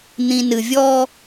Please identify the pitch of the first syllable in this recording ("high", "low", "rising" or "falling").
low